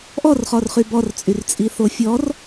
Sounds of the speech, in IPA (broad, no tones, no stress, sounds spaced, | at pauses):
ʔ ɔ r χ ɔ r χ y b ɔ r t͡sʼ y r t͡sʼ i θ o fʲ ɔ r